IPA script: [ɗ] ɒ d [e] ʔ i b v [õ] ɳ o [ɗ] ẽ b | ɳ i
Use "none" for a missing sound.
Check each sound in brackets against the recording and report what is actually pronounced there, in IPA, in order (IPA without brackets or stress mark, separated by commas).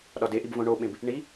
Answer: ɗ, e, õ, ɓ